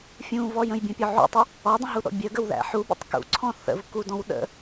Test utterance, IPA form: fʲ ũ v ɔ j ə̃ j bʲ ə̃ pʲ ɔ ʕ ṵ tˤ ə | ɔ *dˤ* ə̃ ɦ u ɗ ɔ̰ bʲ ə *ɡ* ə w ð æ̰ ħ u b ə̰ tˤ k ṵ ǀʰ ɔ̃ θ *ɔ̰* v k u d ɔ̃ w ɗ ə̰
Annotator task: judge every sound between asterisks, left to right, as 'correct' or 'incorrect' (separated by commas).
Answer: correct, correct, incorrect